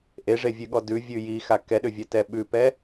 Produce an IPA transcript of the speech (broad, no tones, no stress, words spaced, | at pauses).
ʔeʐevʲʉɠɔ dʉvʲʉ jixa kɛɗʏvʲɛtɛ ɓʉpɛ